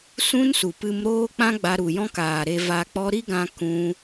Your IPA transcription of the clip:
sũ˦nsu˨pɨ˧m ɾoː˦k͡pã˦ ɡ͡ba˧ɾu˨jɔ̃˦kaː˨ ɾe˧ va˧k͡pɔ˦ ɾi˦ɡã˧ kũ˦

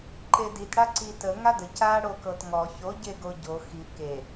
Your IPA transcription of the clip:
ǃedit ɽaǀi tə ŋadə ca ɽokɤtŋɔ ço ɟeɡoɟo xi ke

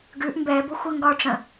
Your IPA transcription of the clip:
ɡʉʔ mbɛbʊ xʷɛŋɡɒʈ͡ʂə̃

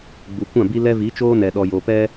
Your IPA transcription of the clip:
ɡ͡bu˨kʷã˦˨bi˦lɛ˦ vi˨˦t͡ʃoː˦nɛ˨ɗɔ˨ jo˨pɛ˦

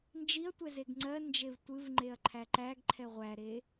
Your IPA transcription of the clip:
nd͡ʒiɐ̯tʷɛ zeɡŋ͡ǀɜnd͡ʒev tʷɨv ŋ͡ǃeɐ̯ǃʰæǃæɡǃʰɛ ʁʷæɾe

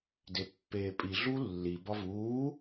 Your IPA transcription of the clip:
depːeːpʼi ɮulːi bɒvuː

